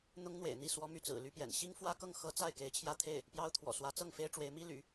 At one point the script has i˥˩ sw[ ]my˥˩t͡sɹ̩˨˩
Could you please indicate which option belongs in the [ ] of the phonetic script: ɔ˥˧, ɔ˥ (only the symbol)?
ɔ˥